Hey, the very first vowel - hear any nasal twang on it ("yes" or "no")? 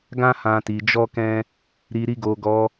yes